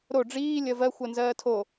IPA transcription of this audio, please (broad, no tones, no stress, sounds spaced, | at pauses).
ɾ o ɖ͡ʐ iː lʲ ɜ v ɜ xʷ ɜ n z ɜː tʰ o